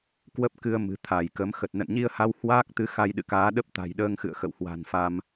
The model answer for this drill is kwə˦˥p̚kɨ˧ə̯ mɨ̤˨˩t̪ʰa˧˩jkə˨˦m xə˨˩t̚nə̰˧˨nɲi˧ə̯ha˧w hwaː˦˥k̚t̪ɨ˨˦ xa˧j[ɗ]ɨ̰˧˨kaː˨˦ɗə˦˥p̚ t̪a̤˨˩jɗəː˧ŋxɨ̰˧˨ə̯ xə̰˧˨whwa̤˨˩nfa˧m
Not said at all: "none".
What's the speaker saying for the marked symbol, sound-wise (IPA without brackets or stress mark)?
ɗ